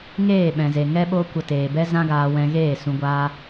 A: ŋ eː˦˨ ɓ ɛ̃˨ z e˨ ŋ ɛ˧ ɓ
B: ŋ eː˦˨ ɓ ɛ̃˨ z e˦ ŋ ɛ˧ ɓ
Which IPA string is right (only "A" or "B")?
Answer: A